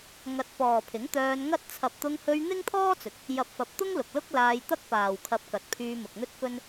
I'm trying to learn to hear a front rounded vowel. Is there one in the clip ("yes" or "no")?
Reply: yes